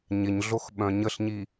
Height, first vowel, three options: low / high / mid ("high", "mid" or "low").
high